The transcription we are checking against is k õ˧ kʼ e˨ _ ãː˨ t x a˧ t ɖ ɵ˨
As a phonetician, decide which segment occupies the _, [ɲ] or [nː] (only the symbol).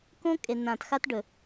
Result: nː